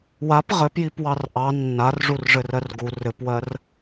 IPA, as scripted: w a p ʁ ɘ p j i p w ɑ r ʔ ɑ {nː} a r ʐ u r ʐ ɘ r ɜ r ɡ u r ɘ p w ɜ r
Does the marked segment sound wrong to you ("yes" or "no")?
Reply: no